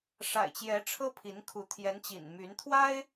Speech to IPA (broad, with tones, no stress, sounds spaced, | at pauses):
ʂ a̰˨˩ ɪ̯ t͡ɕ j ɛ˧˥ ʈ͡ʂʰ ɤ˥ pʰ i˧˥ n kʰ u˧˥ t̪ʰ j ɛ˧˥ n t͡ɕ ḭ˨˩ n m y˧˥ n t̪ʰ w a˥ ɪ̯